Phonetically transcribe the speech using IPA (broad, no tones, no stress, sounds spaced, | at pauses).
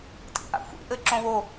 tʼ ḭ ʔ a̰ xʷ ḭ ʔ ɘ ǁ õ w o